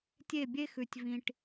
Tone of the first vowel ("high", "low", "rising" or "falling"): falling